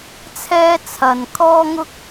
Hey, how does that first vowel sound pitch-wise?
high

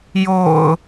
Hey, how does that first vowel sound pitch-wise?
low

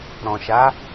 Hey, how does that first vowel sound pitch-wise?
low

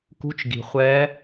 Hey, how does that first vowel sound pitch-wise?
rising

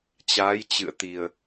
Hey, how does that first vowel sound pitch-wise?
rising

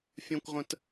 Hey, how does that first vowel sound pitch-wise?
high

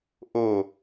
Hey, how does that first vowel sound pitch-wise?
falling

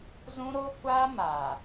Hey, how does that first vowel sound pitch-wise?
high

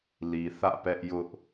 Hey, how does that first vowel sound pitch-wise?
low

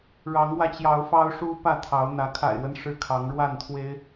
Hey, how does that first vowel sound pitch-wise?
rising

